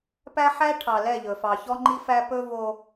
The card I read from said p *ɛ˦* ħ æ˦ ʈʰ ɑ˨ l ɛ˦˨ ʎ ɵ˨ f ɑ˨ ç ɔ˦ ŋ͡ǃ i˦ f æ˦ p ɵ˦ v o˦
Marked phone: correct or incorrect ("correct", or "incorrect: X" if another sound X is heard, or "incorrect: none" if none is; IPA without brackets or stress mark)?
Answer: incorrect: æ˦